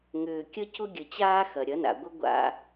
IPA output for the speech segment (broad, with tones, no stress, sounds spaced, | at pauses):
ŋ ʏː˨ kʲ ə˦ c ʊ˦ ɡʲ ə˨ t͡ɕ aː˦ x ɐ˨ ɾʲ ɐ˨˦ n a̰˨ ɡʷ ə˦ ɡʷ a̰˦